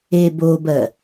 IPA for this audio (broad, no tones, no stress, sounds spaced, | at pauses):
e b o b ɜ